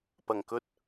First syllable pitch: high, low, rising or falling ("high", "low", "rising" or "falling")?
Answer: low